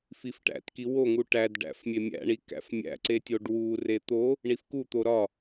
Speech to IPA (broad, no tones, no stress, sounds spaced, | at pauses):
f i f ʈ æ̰ t k i w o ŋ u ʈ æ d ɖ æ̰ f mʲ e mʲ æ̰ ɳ i k æ̰ f mʲ æ̰ ǀ e tʲ o ɖ w u r e t̪ o | ɳ i f k u t̪ o ɾ ɒ